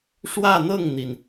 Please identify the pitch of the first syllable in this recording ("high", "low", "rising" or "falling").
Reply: falling